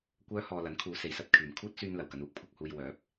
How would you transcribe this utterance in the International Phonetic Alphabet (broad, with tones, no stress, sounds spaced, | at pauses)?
kʷ œː˥ h ɔː˧ l ɐ˨˥ n kʰ uː˨˧ s e˨ j s ɐ˧ t̚ kʰ yː˨ m kʰ uː˥ t̚ s yː˧ n l ɐ˨˩ w k ɐ˧ n uː˨˥ k̚ pʰ ʊ˧ k̚ h uː˧ j w œː˨˥ p̚